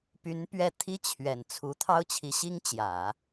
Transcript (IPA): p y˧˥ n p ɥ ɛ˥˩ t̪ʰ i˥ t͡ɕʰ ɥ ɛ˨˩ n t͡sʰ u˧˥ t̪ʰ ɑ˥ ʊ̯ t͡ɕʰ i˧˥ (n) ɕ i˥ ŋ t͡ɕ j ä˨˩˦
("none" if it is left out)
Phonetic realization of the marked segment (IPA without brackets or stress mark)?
none